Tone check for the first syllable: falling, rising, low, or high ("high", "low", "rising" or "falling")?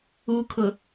low